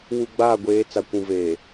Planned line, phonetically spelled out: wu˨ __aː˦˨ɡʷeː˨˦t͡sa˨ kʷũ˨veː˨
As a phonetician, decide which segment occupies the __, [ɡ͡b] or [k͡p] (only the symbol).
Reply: ɡ͡b